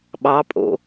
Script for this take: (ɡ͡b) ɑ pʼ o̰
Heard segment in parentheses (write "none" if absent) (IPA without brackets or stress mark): ɓ